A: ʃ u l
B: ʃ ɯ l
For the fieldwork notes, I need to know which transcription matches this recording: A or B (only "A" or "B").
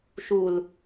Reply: A